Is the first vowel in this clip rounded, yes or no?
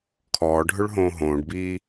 yes